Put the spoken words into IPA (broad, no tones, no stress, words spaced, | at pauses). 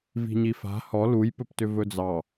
vi̤ɲifa̤ hɔ lujpɵptʏ vɵd͡zɑ